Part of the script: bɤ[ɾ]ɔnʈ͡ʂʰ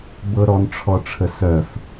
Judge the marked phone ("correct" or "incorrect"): correct